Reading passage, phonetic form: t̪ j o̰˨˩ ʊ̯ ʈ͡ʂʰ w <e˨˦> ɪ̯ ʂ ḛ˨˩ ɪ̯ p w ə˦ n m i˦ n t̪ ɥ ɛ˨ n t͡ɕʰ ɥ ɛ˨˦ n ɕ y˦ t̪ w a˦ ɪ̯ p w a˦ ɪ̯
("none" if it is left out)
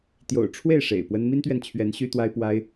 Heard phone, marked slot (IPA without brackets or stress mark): e˥˨